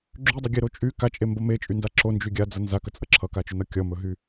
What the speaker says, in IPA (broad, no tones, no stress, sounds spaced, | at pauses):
ɡ͡ǁ y dˤ ɵ ɡʲ e ɾ o t͡ʃʼ y k a t͡ʃʼ e m b ʌ m e t͡ʃʼ y n d a ǁ o n d͡ʒ y ɡʲ a d͡z ʌ n z a k ə t͡sʼ ʌ ǁʰ ʌ k a t͡ʃ ɵ n ʌ kʲ ʌ m ɵ ɦ y